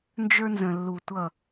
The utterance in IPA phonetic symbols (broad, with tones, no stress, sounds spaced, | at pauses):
n d͡ʒ ə˞˦ n z ə̃˨ lː u˨ tʷ ʌ˦˨